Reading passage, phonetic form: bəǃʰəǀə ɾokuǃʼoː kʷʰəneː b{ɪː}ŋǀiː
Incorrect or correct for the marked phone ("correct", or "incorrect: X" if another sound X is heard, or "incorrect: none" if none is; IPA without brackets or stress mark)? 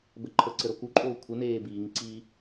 incorrect: iː